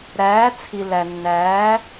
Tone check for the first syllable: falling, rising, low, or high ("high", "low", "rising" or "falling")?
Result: rising